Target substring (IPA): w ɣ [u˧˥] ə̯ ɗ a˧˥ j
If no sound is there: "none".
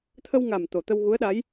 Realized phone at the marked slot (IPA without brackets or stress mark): u˧˥